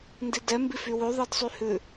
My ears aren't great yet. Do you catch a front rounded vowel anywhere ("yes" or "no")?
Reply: yes